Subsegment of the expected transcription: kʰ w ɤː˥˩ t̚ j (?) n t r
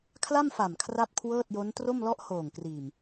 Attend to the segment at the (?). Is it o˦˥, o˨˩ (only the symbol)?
o˦˥